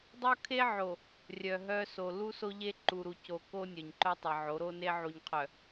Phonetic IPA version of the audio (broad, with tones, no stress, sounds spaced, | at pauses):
dˤ o˦ kʰ e˦ ʕ o˨ | rʲ œ˨ ɦ œ˦ s o˨ l u˦ s o˦ ʎ e˦ ǃ u˨ ɾ u˨ c o˨ k o˦ nʲ œ˨ ɲ ǃ œ˦ tˤ e˨ ʕ o˨˦ ɾ o˦ n e˦ ʕ u˨ ɲ qʰ œ˨